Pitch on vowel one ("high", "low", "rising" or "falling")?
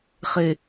low